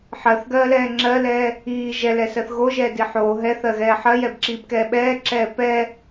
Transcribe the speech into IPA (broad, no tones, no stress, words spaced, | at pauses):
ħɜθɡɜːlɛː ŋ͡ǁɜlɛː | iː ʒɛlɛsɜθ ɣoʒɛːdi ħoː ɦɛθɜɣɛː ħɜjɛbǁiːbkɛː ɓɛːǁɛː pɛ